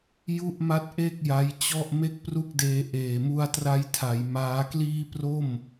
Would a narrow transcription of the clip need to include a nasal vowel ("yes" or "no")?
no